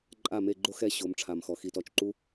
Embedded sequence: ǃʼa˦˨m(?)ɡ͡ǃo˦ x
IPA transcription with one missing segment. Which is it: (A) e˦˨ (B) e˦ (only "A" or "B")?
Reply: A